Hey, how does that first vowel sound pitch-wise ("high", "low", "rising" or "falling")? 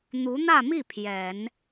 rising